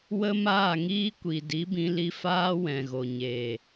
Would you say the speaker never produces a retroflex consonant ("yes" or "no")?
yes